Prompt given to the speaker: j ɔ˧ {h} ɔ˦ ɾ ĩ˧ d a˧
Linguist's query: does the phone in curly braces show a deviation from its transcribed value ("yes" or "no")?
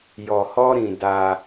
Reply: no